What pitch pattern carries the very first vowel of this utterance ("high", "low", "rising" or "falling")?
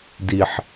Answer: low